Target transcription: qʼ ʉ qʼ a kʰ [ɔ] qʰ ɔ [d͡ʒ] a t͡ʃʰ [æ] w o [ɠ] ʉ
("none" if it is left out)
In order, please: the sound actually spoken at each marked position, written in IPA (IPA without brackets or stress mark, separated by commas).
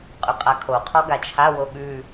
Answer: o, ɡ, a, ɠ